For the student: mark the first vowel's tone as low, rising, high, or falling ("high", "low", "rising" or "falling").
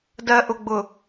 low